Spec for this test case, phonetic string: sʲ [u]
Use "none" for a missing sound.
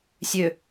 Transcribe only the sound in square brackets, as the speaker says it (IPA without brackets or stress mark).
ø